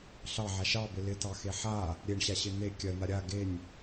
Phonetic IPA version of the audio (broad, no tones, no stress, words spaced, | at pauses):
ɬɑʕa ʃɑbɪ lɪtɑxe ħa | ɾʲeɳɕaɕɪ n̪e kʲɜn̪a ɾʲa ɡenʲ